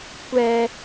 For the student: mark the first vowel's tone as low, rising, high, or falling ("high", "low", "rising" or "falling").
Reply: high